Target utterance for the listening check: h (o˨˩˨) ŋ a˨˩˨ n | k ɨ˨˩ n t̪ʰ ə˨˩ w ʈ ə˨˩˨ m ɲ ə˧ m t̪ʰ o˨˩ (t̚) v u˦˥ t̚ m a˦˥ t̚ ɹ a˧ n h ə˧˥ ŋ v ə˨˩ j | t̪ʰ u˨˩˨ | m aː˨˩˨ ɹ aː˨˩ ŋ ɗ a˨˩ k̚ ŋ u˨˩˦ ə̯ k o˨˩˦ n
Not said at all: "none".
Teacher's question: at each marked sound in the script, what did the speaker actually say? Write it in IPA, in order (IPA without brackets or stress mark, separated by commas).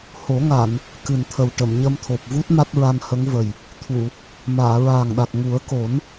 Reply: o˨˩˦, p̚